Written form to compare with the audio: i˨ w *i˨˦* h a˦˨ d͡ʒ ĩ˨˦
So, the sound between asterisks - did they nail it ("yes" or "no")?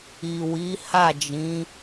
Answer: yes